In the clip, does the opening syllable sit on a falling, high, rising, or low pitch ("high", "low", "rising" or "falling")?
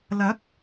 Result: rising